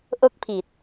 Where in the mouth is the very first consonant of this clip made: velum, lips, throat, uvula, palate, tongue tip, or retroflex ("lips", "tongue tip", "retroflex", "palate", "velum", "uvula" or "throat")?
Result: throat